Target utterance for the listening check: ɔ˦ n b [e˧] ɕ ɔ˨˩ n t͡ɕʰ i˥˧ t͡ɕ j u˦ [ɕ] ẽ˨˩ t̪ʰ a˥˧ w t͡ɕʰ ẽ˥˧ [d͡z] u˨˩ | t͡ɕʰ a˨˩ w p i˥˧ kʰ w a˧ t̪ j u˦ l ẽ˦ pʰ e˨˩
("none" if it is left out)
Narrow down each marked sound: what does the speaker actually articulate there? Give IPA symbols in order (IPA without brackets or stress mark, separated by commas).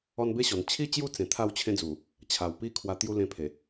e˦, t͡s, d͡z